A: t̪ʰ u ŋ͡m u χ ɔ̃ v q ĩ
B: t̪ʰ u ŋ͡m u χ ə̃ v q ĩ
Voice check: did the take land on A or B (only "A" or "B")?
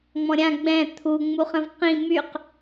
B